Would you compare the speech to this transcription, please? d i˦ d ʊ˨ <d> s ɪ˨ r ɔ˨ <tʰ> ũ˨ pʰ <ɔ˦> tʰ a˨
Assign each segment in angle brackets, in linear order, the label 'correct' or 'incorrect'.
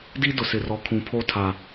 incorrect: none, incorrect: kʰ, incorrect: o˦

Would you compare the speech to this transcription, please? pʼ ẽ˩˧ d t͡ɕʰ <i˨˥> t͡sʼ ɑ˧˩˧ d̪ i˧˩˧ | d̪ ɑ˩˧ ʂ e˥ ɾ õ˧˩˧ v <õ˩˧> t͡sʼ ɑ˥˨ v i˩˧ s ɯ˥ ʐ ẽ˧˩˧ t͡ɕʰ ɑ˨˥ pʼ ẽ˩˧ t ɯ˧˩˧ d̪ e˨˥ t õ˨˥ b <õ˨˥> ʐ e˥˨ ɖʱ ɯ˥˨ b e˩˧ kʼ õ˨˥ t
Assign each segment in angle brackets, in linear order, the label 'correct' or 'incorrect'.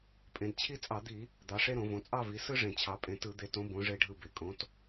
incorrect: i˥, correct, correct

